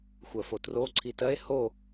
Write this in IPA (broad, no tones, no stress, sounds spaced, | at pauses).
xʷ ɜ f o t r o ǀʰ i t ɜ e̯ h o